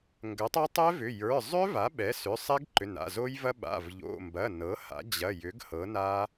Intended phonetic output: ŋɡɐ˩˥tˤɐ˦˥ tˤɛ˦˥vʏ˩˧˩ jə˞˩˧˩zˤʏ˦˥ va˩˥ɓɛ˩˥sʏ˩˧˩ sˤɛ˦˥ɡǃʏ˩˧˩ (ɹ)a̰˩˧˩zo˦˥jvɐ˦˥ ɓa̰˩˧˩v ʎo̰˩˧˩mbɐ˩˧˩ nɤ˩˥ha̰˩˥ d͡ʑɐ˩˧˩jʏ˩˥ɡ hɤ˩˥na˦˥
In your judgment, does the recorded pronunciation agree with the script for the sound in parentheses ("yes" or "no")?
no